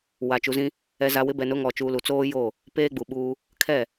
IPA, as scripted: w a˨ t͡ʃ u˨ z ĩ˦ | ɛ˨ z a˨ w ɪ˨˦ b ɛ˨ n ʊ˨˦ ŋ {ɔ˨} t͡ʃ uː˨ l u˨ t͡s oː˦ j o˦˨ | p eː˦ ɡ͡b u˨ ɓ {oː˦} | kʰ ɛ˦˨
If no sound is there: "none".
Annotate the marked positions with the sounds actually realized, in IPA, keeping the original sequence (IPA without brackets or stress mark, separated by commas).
ɔ˨, uː˦